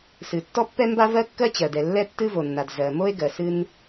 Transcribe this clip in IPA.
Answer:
s ɨ˩ tː ɔ˥ pː ɛ˥ m b a˥ v ɜ˥ kː ɜ˥ t͡ɕ ɜ˩ d ɛ˩ lː ɛ˥ tː ɨ˥ v o˩ nː a˩ d z ɜ˩ m o˥ e̯ ɡ ɜ˩ s ɨ˥ n

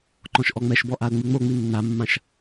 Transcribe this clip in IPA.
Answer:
ǃ ɔ̃ ʃ ʔ ɔ ŋ͡m ɛ ʃ b ɔ ʔ a ə̯ ŋ͡m ɨ ŋ͡m o ŋ͡m i nː a mː ã ʃ

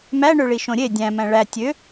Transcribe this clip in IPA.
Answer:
m æ ɳ ø ɭ i ʃ õ ɾʲ e dʲ æ̃ m æ̃ ɭ æ tʲ ø

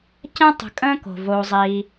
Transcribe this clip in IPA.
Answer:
c ɛ̃˥ tˤ ə̤˨ kʼ ə̃ː˥ k o̤˩ v o˨ zˤ iː˨

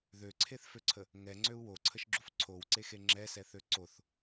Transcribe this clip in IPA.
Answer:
ð ø ǀʰ e θ f ø ǀʰ ə | ŋ ɛ ŋ͡ǀ ø u̯ w o ǀʰ ə ʃ ɡ͡ǁ u f ǀʰ o w ǀ e x e ŋ͡ǁ ɛ s ɛ θ ø ǀ o θ

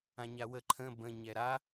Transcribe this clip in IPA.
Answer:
ã ɲ a w ə ǃʰ ə̃ b ə̃ ɲ ɛ ɾ a

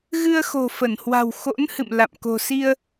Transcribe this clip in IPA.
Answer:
ɣ ɨ˧ ə̯ x o̤˨˩ f ə˧˩ n h w a̤˨˩ w x o̰˧˥ n h ɨ̰˧˨ m l a̰˧˨ m k o̤˨˩ s i˧ ə̯

